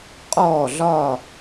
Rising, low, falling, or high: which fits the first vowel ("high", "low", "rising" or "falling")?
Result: falling